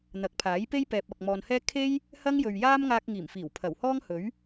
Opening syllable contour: rising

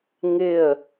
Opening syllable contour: falling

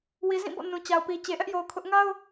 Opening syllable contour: low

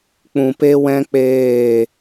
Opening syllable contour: low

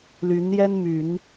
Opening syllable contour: rising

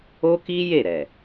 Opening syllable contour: high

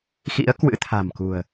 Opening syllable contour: rising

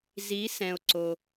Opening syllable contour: rising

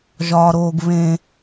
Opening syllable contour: high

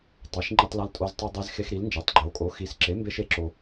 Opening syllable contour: rising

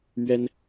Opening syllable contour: high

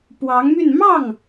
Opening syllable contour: rising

